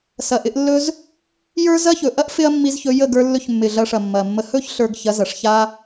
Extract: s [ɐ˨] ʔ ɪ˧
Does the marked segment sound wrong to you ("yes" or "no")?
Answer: no